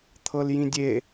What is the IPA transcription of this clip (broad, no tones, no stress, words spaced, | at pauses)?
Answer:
t̪ʰɤljĩdʲe